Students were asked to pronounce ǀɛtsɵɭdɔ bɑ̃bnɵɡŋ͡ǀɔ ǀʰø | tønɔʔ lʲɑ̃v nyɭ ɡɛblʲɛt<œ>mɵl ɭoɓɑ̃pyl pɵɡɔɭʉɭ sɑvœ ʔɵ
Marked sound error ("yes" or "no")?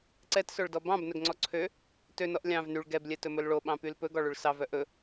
yes